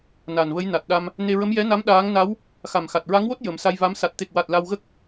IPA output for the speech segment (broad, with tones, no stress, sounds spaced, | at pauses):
n a˨˩ n v ə˧˥ j n a˨˩ t̚ ɗ a˧ m | n e˧ ɹ ə˧˥ m j ɛ˧˥ n a˧˥ m ɗ aː˧˥ ŋ n a˧˥ w | x a˨˩ m x a˨˩ t̚ ɹ a˧˥ ŋ w o˦˥ t̚ j ə˨˩˦ m s a˧ j v a˧˥ m s a˨˩ t̚ t̪ e˨˩ k̚ w a˨˩ t̚ l a˧ w ɣ ə˦˥ k̚